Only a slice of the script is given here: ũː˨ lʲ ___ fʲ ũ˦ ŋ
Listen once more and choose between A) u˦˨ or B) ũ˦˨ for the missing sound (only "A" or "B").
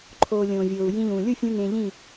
A